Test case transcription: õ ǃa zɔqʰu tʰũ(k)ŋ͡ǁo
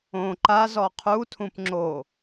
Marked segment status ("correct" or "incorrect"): incorrect